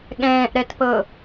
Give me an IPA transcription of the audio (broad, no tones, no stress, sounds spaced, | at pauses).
ɠ ɛ̃ː ʔ ɾ ɛ t p ɤ